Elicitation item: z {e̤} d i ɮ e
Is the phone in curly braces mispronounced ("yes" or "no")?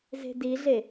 no